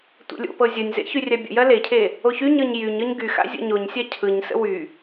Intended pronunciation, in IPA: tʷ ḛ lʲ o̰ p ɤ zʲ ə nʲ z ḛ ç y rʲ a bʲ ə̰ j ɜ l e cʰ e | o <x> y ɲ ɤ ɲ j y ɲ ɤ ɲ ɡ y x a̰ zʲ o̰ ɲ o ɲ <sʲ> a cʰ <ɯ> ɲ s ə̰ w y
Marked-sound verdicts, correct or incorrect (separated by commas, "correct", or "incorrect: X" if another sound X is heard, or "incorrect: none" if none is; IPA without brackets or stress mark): incorrect: ç, correct, correct